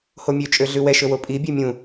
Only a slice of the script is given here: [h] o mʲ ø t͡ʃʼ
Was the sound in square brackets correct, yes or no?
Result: yes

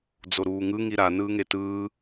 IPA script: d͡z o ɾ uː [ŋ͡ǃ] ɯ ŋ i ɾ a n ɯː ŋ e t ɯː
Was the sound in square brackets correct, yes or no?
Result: no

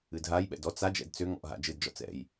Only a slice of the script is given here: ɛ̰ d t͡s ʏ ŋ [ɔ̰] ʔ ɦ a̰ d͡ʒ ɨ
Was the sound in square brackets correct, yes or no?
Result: yes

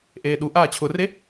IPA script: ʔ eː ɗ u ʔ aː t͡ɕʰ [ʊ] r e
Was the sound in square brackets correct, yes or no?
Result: yes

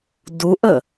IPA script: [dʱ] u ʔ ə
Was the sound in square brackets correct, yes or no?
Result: no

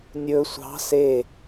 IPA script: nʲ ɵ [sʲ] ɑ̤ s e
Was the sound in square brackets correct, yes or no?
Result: no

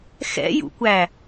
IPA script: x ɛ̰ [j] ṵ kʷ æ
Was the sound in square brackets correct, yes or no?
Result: yes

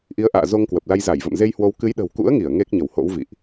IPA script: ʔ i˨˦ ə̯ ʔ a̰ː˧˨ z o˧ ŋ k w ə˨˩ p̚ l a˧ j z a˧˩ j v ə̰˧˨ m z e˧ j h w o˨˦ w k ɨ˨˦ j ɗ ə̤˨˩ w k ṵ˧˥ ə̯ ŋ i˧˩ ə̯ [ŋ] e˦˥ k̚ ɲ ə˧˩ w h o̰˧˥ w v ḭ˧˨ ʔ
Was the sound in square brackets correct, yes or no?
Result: yes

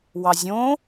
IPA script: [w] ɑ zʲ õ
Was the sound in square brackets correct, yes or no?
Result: yes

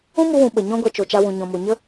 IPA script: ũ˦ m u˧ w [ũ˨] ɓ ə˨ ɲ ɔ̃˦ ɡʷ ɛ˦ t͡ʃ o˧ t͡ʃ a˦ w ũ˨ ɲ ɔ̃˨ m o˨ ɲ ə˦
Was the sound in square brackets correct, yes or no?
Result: yes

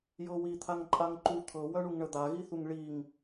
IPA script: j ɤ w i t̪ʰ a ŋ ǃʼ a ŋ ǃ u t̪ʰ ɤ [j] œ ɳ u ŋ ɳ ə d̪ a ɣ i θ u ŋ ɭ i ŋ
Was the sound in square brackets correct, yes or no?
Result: no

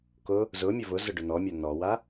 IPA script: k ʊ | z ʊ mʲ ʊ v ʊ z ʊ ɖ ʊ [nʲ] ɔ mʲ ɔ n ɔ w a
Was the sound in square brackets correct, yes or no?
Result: no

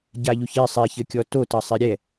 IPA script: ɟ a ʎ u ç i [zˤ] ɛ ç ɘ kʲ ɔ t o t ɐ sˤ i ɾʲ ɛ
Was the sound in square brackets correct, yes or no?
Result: no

